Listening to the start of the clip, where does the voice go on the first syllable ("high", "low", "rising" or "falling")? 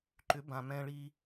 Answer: rising